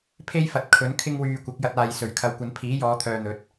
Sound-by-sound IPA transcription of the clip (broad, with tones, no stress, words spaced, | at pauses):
pʰe˥jfɐ˨t̚ kʰɵ˨˥nkʰɪ˥ŋwyː˧kʷɐ˨˥k̚ jɐ˧t̚aː˨jsɵ˨˩ɥkʰɐ˨˧w kʷɐ˨˧npʰiː˨˥ jɔː˨˧ t̪ʰœː˧n̪ɵ˨˥t̚